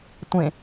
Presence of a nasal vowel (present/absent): present